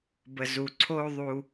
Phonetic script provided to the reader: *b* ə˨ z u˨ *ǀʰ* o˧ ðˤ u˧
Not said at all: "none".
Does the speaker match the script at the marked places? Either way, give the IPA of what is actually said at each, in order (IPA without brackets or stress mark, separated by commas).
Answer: b, ǀʰ